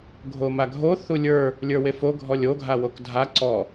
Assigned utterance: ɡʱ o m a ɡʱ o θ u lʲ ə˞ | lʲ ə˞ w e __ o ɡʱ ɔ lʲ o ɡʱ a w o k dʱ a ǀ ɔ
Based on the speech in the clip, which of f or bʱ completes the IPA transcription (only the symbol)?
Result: f